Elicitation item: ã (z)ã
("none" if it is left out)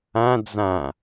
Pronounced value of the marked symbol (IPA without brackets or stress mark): d͡z